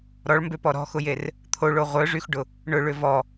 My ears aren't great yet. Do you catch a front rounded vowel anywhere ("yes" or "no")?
yes